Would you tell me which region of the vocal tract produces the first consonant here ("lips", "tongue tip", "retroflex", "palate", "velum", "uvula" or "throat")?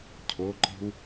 palate